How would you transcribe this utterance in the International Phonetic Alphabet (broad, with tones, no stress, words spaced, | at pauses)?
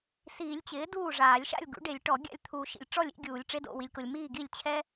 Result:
siː˨˩˦lʲt͡ɕɪː˩˥ duː˥˩ʐaː˨˩˦lʲ ʃa̰˥˩lʲɡṵ˩˥ɖe˨˩˦lʲ ʈɔ˨˩˦ɡʲa̰˥˩lʲt̪ʰuː˨ ʃḭ˨lʲʈ͡ʂɔ˥˩lʲḭ˧˥˧ɡʲuː˨˩˦lʲ ʈ͡ʂe˧˥˧do̰˥˩wi˨lʲko˨lʲ miː˥˩ ɡi˥˩lʲt͡ɕʰɛ˥